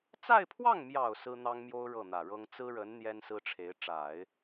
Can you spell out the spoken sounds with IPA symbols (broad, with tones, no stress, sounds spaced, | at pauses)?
t͡s a˥˧ ɪ̯ pʰ w ɑ˥˩ ŋ m j ɑ˨˩ ʊ̯ s ɹ̩˥ n̪ ɑ˥ ŋ m j o˥ ʊ̯ ɻ ɤ˥˩ n̪ ä˨˩ ɻ ɤ˥ ŋ t͡s ɹ̩˥ ɻ ə˧˥ n n̪ j ɛ˥ n s ɹ̩˥ ʈ͡ʂʰ e˧˥ ɪ̯ ʈ͡ʂ a˨˩˦ ɪ̯